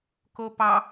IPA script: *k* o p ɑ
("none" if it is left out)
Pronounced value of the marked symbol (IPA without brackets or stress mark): k